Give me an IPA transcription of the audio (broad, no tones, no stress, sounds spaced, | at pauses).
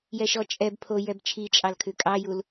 j ɛ ʃ ɔ t͡ʃʼ ɛ b pʰ o j ɛ b t͡ʃʰ i t͡ʃʼ ɑ l kʰ ʉ kʼ ɑ j u l